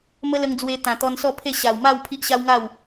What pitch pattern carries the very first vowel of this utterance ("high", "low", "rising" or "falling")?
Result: high